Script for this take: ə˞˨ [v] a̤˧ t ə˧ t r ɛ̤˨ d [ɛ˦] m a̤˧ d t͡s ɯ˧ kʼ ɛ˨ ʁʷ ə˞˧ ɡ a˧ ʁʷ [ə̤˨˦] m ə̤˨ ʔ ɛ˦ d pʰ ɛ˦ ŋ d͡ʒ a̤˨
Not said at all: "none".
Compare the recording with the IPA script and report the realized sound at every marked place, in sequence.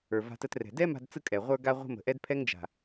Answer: v, ɛ˦, ə̤˧

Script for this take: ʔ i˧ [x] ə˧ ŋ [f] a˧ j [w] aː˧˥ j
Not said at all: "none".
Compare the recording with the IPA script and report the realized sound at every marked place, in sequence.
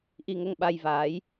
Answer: ŋ, ɓ, v

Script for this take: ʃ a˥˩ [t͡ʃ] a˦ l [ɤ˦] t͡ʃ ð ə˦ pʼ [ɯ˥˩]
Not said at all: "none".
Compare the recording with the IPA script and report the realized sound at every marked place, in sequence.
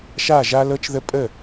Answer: ʒ, ɤ˦, ə˥˩

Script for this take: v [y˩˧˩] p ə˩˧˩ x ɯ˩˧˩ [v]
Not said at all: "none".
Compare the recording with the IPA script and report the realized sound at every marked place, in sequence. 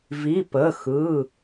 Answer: i˩˧˩, none

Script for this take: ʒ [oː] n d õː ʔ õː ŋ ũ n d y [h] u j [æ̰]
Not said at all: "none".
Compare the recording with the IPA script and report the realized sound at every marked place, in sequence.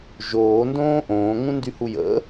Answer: oː, h, ə̰

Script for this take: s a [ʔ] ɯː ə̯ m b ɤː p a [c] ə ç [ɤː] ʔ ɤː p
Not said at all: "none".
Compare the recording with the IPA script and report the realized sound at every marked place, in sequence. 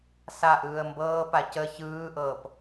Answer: ʔ, c, ɯː

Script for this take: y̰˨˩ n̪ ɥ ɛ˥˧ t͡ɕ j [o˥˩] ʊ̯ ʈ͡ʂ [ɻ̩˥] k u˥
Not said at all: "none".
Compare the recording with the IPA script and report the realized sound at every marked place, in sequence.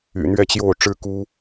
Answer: o˥˩, ɻ̩˥

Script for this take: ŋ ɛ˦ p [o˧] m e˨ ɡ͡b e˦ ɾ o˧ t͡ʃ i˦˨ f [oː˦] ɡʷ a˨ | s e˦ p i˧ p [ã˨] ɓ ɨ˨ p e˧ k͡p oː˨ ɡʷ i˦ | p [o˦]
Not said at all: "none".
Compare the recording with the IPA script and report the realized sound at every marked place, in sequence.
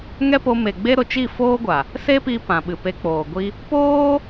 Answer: o˧, oː˦, ã˨, oː˦

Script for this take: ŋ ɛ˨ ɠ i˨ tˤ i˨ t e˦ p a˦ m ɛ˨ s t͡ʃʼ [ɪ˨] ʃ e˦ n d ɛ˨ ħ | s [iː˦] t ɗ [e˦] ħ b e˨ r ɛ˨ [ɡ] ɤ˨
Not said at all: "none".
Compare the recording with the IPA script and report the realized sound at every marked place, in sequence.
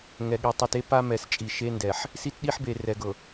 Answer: i˨, i˦, i˦, ɡ

